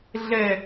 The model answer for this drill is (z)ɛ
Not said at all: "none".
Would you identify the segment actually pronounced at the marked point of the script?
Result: ɮ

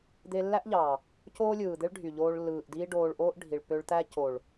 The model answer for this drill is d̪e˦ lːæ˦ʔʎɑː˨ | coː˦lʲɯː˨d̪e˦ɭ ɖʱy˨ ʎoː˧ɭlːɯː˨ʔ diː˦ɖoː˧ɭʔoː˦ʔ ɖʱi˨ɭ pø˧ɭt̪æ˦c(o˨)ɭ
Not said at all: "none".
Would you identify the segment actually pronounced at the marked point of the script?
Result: o˨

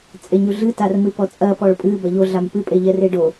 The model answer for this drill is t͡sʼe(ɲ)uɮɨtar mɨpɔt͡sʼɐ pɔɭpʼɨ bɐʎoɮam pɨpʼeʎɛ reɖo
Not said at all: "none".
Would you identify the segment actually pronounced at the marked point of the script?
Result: ɲ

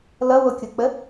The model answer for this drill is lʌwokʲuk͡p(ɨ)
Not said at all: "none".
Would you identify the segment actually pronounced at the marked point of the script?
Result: ə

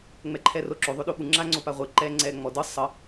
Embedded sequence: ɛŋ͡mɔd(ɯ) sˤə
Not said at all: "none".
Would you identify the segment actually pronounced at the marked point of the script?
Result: ɯ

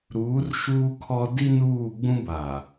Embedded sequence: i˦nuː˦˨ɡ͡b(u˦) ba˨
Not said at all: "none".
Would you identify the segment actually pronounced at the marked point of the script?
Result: ũ˦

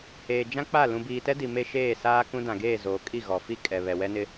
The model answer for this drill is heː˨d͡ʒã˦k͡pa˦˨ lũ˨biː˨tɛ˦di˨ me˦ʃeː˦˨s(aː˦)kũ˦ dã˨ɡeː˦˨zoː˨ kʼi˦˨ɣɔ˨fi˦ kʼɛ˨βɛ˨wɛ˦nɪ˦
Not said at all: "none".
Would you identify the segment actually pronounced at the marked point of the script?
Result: aː˦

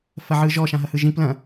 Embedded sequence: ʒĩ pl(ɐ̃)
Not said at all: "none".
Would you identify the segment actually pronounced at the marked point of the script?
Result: ɐ̃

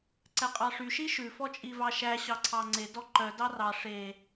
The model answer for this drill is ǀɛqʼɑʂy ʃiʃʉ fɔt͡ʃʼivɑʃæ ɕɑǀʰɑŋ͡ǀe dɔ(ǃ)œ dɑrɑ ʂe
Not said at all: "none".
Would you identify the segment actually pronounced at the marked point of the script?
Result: ǃ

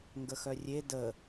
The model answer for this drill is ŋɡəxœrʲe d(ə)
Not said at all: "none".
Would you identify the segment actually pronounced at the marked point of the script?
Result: ə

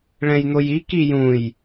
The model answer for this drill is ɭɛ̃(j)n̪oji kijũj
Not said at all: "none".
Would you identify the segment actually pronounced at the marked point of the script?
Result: j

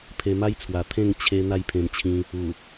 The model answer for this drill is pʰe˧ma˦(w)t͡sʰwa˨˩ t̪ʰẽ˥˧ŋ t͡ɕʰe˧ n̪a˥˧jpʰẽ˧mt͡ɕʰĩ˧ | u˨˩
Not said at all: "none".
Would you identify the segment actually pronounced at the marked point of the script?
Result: j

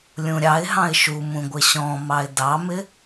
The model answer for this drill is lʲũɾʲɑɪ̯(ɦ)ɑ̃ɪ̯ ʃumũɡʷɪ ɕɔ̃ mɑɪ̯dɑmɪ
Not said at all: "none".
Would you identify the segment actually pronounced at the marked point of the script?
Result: ɦ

